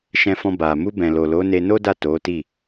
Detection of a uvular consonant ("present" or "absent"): absent